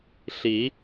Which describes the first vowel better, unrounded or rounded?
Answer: unrounded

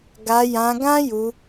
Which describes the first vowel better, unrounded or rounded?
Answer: unrounded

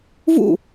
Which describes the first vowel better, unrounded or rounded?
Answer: rounded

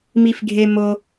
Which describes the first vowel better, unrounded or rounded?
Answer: unrounded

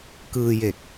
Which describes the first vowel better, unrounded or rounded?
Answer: unrounded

